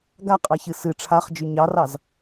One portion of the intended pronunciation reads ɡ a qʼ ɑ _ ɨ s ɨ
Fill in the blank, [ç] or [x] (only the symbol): ç